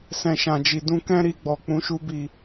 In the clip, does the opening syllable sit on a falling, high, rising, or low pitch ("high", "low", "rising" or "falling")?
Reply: low